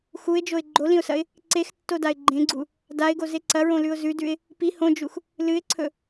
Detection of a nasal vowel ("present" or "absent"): present